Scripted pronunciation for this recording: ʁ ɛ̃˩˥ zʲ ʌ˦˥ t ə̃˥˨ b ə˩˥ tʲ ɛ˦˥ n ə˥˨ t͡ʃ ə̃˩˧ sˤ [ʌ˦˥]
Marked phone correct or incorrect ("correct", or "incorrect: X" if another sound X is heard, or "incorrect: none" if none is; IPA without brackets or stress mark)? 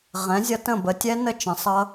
correct